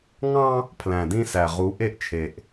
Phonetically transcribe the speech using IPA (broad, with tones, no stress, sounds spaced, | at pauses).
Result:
ŋ ɑ̃˦ | pʰ l æ̃˨ d ĩ˦ s æ˨ ʁ u˨˦ ʔ e˦ ʔ t͡ʃʰ e˨ ʔ